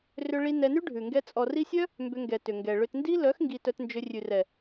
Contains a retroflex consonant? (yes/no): yes